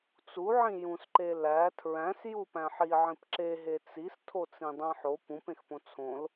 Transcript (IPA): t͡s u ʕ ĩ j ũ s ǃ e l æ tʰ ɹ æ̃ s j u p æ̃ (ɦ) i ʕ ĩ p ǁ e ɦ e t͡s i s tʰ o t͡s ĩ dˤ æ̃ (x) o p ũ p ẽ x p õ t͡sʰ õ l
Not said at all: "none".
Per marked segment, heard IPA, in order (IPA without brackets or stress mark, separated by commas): ħ, ħ